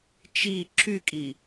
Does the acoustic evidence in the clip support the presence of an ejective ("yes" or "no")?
yes